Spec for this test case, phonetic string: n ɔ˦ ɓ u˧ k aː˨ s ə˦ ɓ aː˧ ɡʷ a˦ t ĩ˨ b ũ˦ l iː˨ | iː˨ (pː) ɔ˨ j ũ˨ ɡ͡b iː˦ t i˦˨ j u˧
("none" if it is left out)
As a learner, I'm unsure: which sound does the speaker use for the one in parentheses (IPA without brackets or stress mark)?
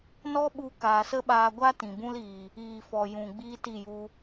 f